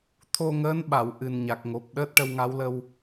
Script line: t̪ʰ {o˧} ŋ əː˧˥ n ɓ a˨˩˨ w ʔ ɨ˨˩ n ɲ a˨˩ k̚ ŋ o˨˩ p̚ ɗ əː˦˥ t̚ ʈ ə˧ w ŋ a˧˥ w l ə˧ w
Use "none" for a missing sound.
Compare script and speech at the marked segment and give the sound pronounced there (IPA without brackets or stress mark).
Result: o˧